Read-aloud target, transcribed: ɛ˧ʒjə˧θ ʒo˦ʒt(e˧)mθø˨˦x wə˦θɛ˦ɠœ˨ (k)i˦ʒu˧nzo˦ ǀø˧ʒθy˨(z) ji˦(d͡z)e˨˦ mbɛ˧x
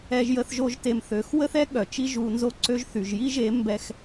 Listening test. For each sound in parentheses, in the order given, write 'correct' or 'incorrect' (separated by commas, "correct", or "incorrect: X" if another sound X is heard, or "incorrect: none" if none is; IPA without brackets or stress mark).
correct, incorrect: t͡ʃ, incorrect: ʒ, incorrect: ʒ